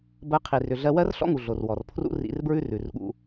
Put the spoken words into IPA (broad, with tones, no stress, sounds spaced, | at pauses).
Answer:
b ɜ˧ qʰ i˨ r ʏ˨ ɮ ɜ˧ w ɜ˦ r ɬ ɔ̰˦ ŋ u˨ ɮ o˨ r w ɔ˨ r pʰ r ṵ˦ r ḭ˧ r b ɹ ʉ˦ r ʉ˨ r ɠ ṵ˧